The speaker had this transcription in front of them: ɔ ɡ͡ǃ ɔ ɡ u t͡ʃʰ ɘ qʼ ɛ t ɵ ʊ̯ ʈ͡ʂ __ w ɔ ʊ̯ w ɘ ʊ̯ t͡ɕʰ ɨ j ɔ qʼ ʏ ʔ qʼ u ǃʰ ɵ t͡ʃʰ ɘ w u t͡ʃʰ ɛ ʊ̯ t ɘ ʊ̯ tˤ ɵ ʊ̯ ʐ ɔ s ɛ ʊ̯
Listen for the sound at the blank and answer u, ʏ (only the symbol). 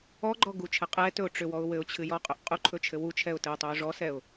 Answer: ʏ